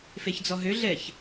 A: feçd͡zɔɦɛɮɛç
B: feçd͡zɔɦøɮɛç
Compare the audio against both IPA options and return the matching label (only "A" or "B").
B